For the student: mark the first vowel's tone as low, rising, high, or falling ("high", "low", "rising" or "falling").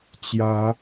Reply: rising